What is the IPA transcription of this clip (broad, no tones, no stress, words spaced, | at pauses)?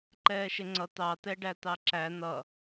ǃɛːʃɪŋ͡ǀʌ t̪ɑt̪ɛɖæ t̪ɑǁæ n̪ʌ